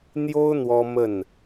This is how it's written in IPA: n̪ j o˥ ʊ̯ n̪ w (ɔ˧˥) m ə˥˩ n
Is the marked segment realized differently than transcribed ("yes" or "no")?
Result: yes